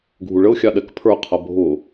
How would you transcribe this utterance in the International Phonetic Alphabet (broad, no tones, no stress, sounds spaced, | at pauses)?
ɡʱ u ɭ ə ʊ̯ xʲ ɑ ɗ ɛ k pʰ ə˞ qʰ ʌ bʱ ʊ